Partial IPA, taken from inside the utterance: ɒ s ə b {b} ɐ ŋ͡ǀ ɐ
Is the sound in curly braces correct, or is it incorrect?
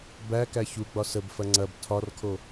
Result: incorrect